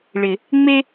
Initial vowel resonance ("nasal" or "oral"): oral